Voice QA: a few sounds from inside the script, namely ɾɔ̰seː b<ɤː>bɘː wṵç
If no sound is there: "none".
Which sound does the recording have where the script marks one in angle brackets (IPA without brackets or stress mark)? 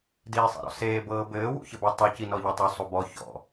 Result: ɤː